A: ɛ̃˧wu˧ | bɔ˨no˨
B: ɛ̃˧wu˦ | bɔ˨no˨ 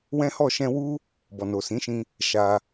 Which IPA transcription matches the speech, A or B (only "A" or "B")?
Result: B